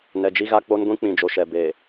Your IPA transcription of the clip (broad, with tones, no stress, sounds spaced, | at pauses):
n ɛ˨ d͡ʒ i˦ ɣ a˦ k͡p o˦ n ɡʷ ĩ˦ k͡p ĩ˨ d͡ʒ o˨ ʃ ɛ˨ b eː˨